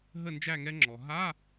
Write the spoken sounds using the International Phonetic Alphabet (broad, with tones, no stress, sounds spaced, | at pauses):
ɦ ə˥˨ n d͡ʒ æ˥˨ ŋ ɛ˦˥ ŋ͡ǁ ɔ˩ ɦ a˧˥˧